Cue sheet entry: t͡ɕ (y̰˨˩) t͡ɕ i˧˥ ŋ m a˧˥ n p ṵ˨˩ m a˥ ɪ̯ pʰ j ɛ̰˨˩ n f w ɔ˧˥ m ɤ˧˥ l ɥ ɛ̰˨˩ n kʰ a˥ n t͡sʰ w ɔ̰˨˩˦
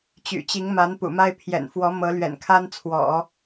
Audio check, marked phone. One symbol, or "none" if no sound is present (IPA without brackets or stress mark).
y̰˨˩